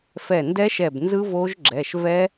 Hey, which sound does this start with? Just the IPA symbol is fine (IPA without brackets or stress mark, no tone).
f